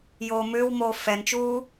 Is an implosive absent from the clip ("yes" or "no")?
yes